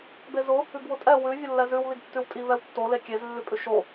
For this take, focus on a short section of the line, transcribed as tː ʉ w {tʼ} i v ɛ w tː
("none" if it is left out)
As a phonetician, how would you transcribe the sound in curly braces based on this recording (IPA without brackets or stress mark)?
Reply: tʼ